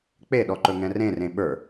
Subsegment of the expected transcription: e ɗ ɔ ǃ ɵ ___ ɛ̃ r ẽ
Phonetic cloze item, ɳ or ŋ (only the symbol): ŋ